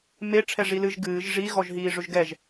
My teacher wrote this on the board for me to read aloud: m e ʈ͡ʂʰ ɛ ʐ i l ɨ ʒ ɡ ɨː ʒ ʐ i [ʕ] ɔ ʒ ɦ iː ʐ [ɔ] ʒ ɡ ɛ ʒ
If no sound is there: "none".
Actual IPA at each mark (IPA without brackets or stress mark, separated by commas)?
ɣ, ɵ